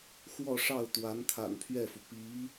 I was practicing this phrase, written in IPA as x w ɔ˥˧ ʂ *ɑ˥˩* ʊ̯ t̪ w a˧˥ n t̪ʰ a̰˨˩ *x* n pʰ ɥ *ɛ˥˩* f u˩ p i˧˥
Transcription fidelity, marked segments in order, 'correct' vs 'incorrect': correct, incorrect: none, correct

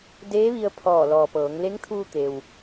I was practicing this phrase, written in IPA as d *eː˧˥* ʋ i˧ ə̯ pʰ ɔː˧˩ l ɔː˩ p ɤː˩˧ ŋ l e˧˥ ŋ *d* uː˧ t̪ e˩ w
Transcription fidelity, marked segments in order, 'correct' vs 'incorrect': correct, incorrect: t̪ʰ

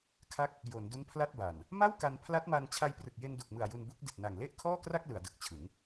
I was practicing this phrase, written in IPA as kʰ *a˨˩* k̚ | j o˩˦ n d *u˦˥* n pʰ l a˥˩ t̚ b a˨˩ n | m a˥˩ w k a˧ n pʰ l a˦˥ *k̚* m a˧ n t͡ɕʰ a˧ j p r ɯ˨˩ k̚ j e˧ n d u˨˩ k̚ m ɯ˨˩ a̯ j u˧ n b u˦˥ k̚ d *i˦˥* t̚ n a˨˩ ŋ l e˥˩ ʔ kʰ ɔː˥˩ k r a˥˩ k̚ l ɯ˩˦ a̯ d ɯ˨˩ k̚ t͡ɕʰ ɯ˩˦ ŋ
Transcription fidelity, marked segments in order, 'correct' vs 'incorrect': incorrect: a˦˥, correct, incorrect: t̚, incorrect: i˨˩

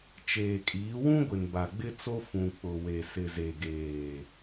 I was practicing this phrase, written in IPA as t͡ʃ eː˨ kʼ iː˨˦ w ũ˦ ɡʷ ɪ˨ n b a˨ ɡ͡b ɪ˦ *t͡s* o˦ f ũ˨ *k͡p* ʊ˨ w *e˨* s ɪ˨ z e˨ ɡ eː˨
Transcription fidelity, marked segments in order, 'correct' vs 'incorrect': correct, correct, correct

